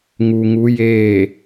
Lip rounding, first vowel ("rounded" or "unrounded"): rounded